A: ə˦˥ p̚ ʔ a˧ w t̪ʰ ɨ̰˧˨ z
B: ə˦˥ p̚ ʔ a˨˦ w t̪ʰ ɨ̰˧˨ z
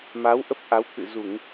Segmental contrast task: B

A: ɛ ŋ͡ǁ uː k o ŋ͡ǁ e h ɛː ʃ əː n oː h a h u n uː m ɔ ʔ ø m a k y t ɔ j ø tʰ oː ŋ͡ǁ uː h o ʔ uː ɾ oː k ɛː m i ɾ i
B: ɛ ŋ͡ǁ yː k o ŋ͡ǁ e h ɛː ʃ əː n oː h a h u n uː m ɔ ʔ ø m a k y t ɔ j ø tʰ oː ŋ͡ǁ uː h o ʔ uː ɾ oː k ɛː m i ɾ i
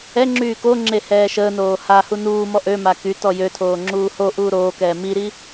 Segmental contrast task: B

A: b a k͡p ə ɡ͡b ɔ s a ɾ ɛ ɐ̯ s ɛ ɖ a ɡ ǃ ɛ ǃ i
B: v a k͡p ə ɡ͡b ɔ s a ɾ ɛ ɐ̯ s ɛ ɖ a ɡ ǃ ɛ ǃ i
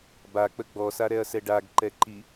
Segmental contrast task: A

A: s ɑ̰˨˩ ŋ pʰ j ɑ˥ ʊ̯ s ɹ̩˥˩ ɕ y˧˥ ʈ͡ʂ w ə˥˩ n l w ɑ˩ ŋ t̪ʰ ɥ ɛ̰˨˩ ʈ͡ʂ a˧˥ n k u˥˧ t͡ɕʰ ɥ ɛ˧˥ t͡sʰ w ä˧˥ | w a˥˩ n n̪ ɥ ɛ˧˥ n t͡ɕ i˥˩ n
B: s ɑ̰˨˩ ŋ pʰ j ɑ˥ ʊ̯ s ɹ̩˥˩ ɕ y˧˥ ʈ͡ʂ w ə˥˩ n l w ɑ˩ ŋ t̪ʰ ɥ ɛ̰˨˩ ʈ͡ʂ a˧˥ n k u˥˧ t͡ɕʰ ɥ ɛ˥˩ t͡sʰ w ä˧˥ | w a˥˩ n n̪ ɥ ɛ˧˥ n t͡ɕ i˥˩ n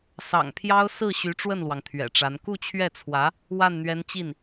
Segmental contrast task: B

